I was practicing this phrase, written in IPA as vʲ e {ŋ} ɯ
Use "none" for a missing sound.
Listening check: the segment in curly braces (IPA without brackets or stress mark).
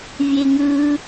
ŋ